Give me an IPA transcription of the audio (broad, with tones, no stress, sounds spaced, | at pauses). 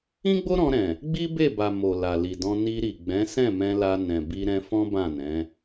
ĩ˦ ɡ͡b o˦ ɾ ɔ̃˧ ɾ ɛ̃˨ | ɡ͡b i˦ b e˦˨ b a˨ m o˨ l a˨ l i˨ d ɔ̃˧ n i˧ ɾ i˨ ɡ͡b ɛ̃˨˦ s ɛ̃˦˨ m ɛ̃˧ l a˧ n ɛ̃˨ b i˧ ɾ ɛ̃˧ f ɔ̃˦ b ã˦˨ n ɛ̃˨˦